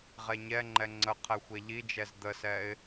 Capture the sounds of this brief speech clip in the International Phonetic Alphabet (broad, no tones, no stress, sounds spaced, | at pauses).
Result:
ʁ ɛ ɲ ɛ ŋ͡ǃ ɛ ŋ͡ǀ ə qʰ ɛ xʷ ɛ ʎ i d͡ʒ ɛ z d̪ ə s ɛ ɪ̯